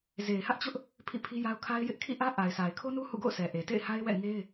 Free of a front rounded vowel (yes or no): yes